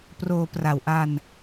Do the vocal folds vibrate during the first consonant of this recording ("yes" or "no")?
no